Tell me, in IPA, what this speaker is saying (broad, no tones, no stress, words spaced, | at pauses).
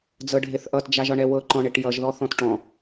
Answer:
d͡zɤɖʱeθʔʌt d͡ʒaʒɒɳɛwɤ ǃɔ̃ɳeʈjʌʒ ðɔθɔ̃tʈɔ̃